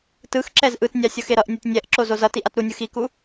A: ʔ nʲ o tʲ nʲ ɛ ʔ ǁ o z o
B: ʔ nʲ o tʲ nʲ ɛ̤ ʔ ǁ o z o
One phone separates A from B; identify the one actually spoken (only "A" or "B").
A